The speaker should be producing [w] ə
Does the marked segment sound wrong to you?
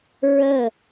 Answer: yes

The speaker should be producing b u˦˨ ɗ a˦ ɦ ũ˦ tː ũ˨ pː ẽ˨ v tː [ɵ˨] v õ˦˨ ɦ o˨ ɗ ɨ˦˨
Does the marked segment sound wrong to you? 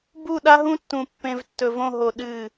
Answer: no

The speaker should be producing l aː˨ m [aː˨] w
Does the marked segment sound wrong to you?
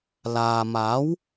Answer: yes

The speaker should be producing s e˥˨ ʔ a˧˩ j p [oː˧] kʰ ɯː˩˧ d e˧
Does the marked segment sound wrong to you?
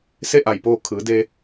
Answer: no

